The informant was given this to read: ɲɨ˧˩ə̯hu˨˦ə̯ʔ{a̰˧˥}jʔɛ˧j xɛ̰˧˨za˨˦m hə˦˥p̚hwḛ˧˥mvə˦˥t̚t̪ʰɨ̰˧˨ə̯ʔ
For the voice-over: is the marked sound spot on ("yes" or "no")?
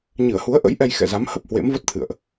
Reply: no